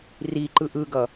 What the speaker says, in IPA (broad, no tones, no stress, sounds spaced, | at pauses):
r i ǃ ɯ ʔ ɯ ɡ ʌ